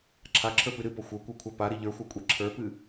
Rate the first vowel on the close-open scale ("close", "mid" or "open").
open